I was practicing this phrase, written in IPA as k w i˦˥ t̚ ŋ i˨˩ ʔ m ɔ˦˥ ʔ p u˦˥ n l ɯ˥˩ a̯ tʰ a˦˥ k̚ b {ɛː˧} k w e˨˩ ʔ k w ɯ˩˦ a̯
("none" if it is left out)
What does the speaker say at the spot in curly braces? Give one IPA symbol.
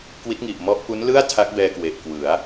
ɛː˧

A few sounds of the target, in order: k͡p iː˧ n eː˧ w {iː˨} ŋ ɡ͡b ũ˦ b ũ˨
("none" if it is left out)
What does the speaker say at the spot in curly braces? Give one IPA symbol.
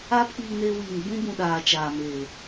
iː˨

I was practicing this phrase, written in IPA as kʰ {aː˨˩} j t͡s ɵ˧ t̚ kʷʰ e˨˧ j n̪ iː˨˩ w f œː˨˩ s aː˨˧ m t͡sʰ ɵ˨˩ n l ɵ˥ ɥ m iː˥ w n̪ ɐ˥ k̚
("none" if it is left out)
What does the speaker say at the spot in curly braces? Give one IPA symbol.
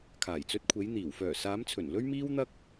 aː˨˩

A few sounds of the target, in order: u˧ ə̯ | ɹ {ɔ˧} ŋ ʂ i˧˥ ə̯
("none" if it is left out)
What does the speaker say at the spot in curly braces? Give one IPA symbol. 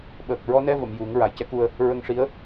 ə˧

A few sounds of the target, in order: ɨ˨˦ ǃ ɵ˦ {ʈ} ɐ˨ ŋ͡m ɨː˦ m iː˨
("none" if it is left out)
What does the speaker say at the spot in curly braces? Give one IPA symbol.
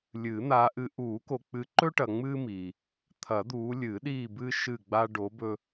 ʈ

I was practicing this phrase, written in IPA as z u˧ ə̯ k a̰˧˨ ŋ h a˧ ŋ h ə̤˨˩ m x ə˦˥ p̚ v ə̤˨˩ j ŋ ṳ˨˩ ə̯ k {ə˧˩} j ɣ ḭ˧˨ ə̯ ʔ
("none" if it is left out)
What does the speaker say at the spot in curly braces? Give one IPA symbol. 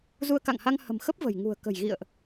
ə̤˨˩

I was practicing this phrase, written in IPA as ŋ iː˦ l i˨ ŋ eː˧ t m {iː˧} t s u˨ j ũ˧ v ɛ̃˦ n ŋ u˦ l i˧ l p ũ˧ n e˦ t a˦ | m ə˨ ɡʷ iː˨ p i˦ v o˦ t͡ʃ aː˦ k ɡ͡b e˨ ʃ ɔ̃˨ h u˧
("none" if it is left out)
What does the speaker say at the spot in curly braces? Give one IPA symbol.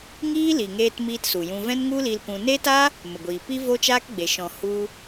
iː˧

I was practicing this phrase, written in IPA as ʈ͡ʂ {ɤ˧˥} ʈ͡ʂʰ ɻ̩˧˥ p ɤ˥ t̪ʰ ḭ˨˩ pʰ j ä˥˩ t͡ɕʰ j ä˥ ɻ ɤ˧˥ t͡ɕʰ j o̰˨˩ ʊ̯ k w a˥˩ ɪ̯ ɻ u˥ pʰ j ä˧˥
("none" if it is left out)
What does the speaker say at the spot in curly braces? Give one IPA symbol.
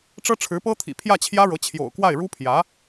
ɤ˥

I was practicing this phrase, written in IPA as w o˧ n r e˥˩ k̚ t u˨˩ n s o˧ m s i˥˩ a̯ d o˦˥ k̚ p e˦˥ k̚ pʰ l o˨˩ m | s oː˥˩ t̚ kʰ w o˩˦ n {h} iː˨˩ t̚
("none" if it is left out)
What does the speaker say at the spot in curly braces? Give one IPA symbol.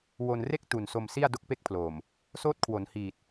h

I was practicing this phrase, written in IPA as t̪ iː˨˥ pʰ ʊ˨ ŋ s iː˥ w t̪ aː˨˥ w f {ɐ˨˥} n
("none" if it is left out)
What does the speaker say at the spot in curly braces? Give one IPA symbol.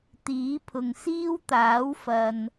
ɐ˨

